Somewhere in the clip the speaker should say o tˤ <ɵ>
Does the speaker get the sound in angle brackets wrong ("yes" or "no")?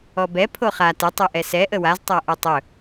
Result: no